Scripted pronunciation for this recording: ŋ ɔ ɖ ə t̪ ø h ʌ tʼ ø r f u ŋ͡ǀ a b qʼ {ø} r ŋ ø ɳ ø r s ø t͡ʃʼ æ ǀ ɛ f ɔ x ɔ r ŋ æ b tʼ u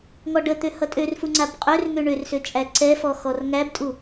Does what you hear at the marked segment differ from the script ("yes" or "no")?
no